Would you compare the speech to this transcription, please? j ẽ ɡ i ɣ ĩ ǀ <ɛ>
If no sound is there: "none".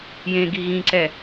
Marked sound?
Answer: ɛ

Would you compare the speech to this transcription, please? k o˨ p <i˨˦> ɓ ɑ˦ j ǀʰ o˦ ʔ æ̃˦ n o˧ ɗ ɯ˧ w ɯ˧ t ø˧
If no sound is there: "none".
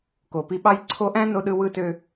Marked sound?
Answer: i˧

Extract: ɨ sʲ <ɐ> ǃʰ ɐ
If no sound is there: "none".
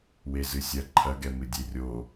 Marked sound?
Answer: ɐ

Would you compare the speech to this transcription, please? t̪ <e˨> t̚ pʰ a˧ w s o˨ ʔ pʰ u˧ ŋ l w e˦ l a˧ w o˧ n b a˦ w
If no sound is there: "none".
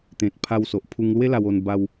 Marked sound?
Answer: ẽ˨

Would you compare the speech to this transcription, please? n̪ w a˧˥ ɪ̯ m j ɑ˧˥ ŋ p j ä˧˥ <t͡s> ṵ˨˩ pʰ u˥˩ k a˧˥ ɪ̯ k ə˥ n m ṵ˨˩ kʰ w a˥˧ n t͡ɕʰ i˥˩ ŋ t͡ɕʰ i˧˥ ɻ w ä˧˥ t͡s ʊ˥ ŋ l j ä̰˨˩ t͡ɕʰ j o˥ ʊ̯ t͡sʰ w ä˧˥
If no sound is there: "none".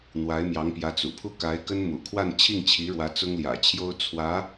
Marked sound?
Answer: t͡s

